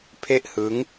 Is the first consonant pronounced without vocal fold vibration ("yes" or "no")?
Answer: yes